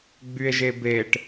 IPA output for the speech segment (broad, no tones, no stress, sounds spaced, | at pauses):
ɡ͡b y e̯ ʒ e b e ʈ